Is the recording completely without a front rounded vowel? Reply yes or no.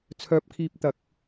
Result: no